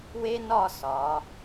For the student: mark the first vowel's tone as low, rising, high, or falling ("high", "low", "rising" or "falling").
high